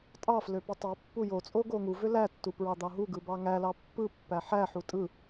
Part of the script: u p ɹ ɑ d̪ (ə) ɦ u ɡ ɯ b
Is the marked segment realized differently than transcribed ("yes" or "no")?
yes